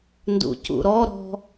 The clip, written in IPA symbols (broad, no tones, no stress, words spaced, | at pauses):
ndṵcṵɾɔ ɾɔ̤